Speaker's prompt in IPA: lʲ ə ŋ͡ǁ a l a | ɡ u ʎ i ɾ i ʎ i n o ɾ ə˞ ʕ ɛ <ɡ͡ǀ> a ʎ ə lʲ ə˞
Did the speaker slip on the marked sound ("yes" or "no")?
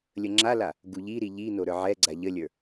no